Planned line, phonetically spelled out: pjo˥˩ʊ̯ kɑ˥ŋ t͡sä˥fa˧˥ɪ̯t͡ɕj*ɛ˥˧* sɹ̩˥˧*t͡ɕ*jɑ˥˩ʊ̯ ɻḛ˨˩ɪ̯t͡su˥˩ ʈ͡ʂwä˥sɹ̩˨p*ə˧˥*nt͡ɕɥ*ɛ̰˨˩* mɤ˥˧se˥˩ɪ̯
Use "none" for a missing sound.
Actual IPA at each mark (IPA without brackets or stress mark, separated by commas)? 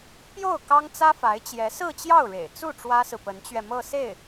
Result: ɛ˧˥, t͡ɕ, ə˧˥, ɛ˧